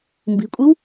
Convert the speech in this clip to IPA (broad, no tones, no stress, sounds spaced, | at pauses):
m b i̤ kʷʼ i w